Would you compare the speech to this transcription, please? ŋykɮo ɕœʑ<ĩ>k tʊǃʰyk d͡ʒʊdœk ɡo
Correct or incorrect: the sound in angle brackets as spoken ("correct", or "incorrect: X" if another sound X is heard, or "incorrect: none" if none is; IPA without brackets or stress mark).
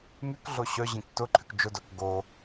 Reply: correct